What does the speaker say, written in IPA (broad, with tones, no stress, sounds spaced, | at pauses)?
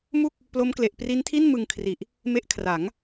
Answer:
m u˥˩ k̚ | p l o˦˥ m k l e˨˩ ʔ p r i˦˥ n tʰ i˥˩ n m ɯ˧ ŋ kʰ r i˨˩ ʔ | m e˦˥ ʔ kʰ r a˩˦ ŋ